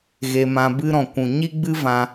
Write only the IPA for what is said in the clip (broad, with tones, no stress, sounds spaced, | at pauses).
ɣ e˧ m ã˧ b ɨ˧ ɾ ɔ̃˨ kʷ ũ˨ ɲ i˦ ɡ͡b ɨ˦ v ã˧